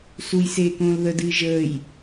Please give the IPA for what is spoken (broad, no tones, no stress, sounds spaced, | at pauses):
s u j s eː k õː l ð ə d ɨː ʒ əː j